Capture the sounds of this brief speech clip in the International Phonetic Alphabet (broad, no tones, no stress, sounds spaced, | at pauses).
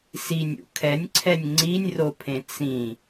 s i nʲ ṵ kʰ ɛ nʲ ǀʰ ɛ nʲ ŋ͡ǀ i nʲ r o pʰ ẽ t͡s ĩ